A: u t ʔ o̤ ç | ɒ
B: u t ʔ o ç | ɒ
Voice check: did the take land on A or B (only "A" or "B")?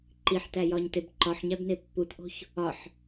A